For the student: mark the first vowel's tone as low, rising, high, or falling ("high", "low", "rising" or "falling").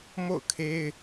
falling